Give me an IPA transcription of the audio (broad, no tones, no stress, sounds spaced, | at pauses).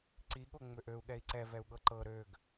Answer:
ǀ i ɠ o ŋ͡m ø ʔ ø u̯ ɠ ɛ i̯ ǀ ɛ v ɛ u̯ ɠ ɤ ǃ ɤ ɾ ø ɡ